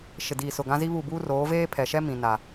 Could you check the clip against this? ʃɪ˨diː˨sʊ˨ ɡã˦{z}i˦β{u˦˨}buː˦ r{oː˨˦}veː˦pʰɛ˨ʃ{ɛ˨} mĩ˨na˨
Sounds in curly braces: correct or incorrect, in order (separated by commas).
correct, correct, correct, incorrect